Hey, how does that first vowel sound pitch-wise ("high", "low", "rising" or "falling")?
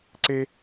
high